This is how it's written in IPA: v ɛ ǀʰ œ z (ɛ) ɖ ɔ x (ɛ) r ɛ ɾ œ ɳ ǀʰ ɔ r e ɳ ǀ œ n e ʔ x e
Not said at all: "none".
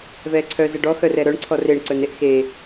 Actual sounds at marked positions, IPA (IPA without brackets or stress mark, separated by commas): ɛ, œ